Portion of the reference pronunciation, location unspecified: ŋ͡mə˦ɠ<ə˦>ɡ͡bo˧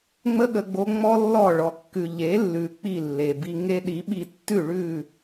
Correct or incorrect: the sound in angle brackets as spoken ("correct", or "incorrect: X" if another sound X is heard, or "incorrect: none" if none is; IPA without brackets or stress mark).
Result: incorrect: ə˧